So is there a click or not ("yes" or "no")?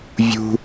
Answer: no